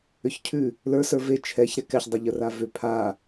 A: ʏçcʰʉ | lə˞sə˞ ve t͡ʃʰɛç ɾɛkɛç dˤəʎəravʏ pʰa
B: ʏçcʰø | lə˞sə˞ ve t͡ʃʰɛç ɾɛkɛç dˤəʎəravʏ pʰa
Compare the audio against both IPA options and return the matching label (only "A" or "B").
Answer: A